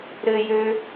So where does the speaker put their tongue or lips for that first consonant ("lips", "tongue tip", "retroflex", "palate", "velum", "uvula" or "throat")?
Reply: tongue tip